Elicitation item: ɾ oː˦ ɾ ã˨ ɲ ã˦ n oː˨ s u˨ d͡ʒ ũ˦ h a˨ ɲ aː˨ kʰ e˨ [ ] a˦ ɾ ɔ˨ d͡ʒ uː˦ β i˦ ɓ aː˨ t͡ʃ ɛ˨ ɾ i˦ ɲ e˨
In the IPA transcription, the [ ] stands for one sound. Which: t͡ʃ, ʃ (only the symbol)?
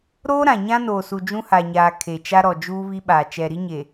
t͡ʃ